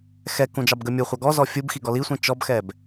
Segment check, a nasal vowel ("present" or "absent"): present